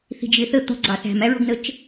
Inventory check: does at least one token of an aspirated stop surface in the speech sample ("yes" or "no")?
no